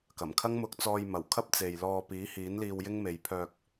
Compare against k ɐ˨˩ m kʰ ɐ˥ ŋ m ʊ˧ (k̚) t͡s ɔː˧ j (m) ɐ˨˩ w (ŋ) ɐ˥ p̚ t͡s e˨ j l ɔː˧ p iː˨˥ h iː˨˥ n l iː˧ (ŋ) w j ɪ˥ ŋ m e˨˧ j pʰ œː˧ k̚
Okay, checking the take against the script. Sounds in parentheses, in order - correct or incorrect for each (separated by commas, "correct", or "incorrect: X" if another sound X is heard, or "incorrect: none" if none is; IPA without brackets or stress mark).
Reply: correct, correct, incorrect: kʰ, incorrect: none